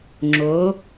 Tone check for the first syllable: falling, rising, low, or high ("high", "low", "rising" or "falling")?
rising